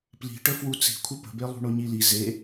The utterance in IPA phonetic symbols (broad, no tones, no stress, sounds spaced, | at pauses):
p l i̤ ʈ ə f w u t͡s i̤ kʷʰ ə p ə̤ b e lˠ ṳ ɳ o ɲ i l i z e